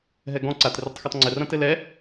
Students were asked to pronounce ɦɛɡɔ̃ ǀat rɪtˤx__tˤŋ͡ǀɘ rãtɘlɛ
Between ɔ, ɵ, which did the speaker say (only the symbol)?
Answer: ɔ